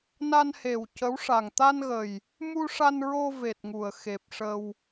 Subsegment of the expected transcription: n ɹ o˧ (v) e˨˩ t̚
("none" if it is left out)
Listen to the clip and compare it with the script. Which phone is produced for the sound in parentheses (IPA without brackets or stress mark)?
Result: v